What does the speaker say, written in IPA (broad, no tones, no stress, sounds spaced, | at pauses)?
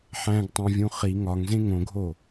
ħ æ̃ ɡ tˤ æ̃ vʲ ũ χ i ŋ ɒ ŋ z ẽ ŋ õ ɡʱ o